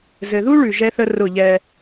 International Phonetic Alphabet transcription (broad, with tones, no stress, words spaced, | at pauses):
zɘ˨ðu˦ ɭʉ˨ʒɛ˦θə˦ rʊ˦˨ʎɛ˦